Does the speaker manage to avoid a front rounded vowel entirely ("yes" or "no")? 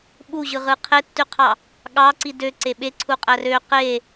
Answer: no